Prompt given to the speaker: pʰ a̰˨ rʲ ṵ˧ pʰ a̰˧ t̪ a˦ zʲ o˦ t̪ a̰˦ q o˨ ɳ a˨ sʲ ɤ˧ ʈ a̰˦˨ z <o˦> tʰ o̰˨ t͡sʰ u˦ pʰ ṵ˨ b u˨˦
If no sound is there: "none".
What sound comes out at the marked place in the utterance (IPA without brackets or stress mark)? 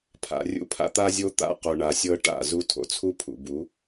u˦